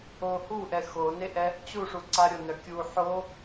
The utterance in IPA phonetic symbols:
o h u ʔ ɛ x o n e ʔ ɛ | t͡ɕ u ʂ u ǀ a ɾʲ o n œ kʲ u ħ o

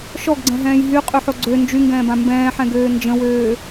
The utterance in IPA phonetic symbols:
ʃ ɔ ɡ ɡ͡ǀ ɛ̃ ɦ ɛ̃ː j ɦ y qʼ y ħ o ɡ͡ǀ ø n d͡ʒ y ŋ ɡ ɛ̃ː b ã m b ɛ̃ː ħ ɛ̃ ɡ øː n d͡ʒ ə̃ w øː

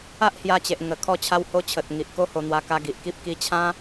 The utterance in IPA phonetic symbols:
a˦ ʔ h j a˧ t͡ɕ e˨ ʔ ŋ ə˨˩ kʰ ɔ˧ t͡ɕʰ a˧ w h o˧ t͡ɕʰ ə˨ t̚ ŋ i˨ ʔ k o˦ h o˧ n̪ w a˧ k a˧ ɡ i˨ ʔ k i˦ p̚ k i˧ t͡ɕʰ ã˦

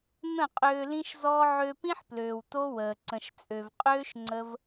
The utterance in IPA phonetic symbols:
n̪ ə̃˦˨ qʼ øː˧ l ĩ˦ ʃ z ɔː˦ ʕ ø˧ p ĩ˦ ħ p l øː˨ w t o˦ w əː˨ ǀ ə̃˨ ʃ t͡sʼ ø˨ v qʼ øː˦ ʃ ŋ͡ǀ ə˦ v

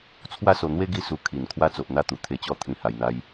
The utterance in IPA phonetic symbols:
t͡sʰ w a˦ s o˧ n̪ w e˦ ɡ i˦ s u˧ kʰ i˨˩ n kʰ w a˧ t͡s o˨ ʔ n̪ a˥˧ t̪ u˨˩ t̪ʰ e˧ t͡ɕ ɔ˦ t̪ʰ ĩ˧ h a˧ j n̪ a˦ j

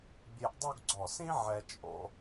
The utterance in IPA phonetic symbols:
bʲ e˧ ʔ dˤ o˥˧ ɡ ɡ͡ǀ ɔ˧˩ s ĩ˥ ʕ ɛ˧ t͡ʃʼ o̰˧

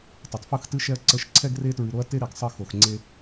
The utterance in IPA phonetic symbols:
tˤ i˩˧ tˤ f ɯ˥˧ x t ɨ˥ ʃ ɛ˥ ɐ̯ ǀ ə˥˧ ʃ ǀʰ ɛ˥ ɡ r e˥ t ɹ ɨ˧ ɾ o˥ ɐ̯ t e˥ ɾ i˩˧ ɡ sˤ ə˥˧ x o˧ x ŋ͡ǀ e˥

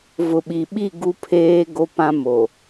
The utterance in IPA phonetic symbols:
v ʊ˨ ɓ i˨ ɓ i˦˨ ɡ u˦ pʰ eː˦ ɡ o˦ p ã˦ m o˨

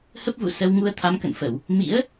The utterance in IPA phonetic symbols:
h ə˦˥ p̚ v ṵ˧˨ s ə˧ w ŋ u˧ ə̯ t̪ʰ a˨˦ m k ə̰˧˨ n f ə˧˩˨ w | m ḭ˧˥ ə̯

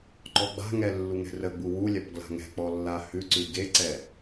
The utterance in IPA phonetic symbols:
ǃ ɔ ɡ͡b a̤ ŋ ɛ lː u ŋ ɛ̤ r ə ɡ͡b u w u lʲ a p ɡ l a̤ ŋ ɛ̤ k͡p ɔ lː a h ʉ ǀ ʉ ɡ e ǀ ɛ

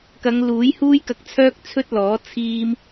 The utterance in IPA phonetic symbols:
k ɐ˨˧ ŋ l uː˨˥ j h uː˥ j k ɐ˧ k̚ t͡sʰ œː˥ k̚ t͡sʰ ɵ˥ t̚ l ɔː˨˥ t͡sʰ iː˥ m

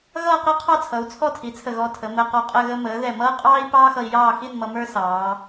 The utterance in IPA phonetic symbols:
ɣ ʌː˥˧ q ɛ˥ qʰ ɑ˥˧ t͡sʰ ʌ˩˧ u̯ t͡sʰ ɔ˥˧ tʰ i˩˧ t͡sʰ ə˧˩ ɣ ɔ˧ tʰ ə˩˧ m əː˧ q ɔ˧ qʼ ə˥˧ ɣ ə˧ m əː˩˧ ð ɛ˧˩ m ʌː˥ qʼ ɑː˥ i̯ p ɑː˥ x ʌ˧ i̯ j ɑː˥˧ x i˥˧ n m ʌ˧ m ə˞˥ s ɑː˩˧

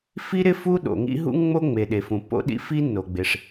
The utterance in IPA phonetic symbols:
f i˥ ɾ ɪ˥ f u˥ ɗ o̰˩ ŋ ḭ˥ ɦ ṵ˥ ŋ ŋ͡m o˥ ŋ͡m e˩ ɗ e˩ f ũ˩ pː o̰˥ ɗ ḭ˥ f i˥ nː o˩ ɡ͡b ɪ˩ ʂ

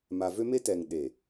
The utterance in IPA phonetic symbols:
m a˨ v ø˦ m e˦ t ɛ˨ ŋ ɗ e˨

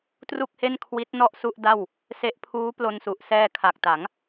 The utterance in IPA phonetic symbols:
t r u˥˩ k̚ h e˥˩ n kʰ w i˦˥ t̚ n ɔ˥˩ ʔ s u˥˩ ʔ d a˥˩ w | s e˦˥ ʔ pʰ uː˦˥ p l o˧ n s u˨˩ ʔ s ɛː˧ kʰ a˨˩ k̚ t a˩˦ ŋ

